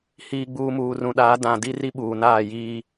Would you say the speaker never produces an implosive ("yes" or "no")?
no